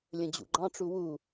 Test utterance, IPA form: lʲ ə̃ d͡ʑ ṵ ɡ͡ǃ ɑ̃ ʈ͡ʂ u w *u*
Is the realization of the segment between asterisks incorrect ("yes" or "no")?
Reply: no